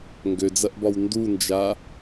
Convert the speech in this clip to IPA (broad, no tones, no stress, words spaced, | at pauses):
ŋɡød͡zɐʔbɒw ndund͡ʒa